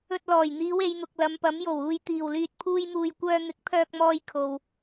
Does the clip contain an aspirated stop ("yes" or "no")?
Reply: yes